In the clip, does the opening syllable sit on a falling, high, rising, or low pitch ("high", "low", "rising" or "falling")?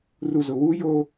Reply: low